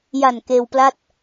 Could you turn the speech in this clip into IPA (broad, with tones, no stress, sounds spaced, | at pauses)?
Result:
j a˨˩ n k eː˧ w p l a˥˩ t̚